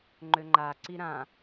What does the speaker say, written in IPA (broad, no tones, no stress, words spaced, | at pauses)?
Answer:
ŋ͡ǃøŋ͡ǃa ǀiɾã